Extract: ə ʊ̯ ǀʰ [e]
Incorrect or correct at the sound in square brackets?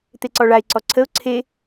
correct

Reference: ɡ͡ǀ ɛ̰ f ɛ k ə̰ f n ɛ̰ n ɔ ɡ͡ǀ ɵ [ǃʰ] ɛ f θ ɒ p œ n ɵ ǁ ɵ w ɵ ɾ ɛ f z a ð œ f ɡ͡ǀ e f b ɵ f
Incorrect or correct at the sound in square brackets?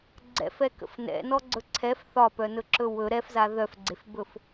incorrect: ǀʰ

